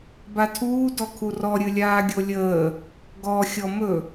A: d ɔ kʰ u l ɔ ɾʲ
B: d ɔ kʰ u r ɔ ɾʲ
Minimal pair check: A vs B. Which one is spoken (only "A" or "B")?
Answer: B